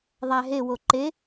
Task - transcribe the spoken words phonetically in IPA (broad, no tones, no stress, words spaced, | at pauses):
ðˤæɦe woǃe